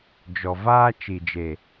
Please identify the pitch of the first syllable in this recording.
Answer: low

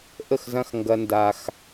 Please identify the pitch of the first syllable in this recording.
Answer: falling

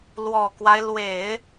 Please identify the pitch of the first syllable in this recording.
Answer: low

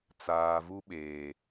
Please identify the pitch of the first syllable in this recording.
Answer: low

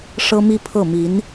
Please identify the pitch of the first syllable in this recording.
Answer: high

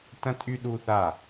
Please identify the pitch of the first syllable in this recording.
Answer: high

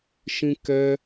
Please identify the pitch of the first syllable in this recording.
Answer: high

